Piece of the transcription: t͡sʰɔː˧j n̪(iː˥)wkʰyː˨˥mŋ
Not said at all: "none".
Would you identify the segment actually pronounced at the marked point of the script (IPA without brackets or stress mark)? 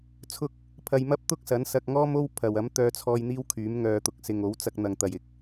iː˥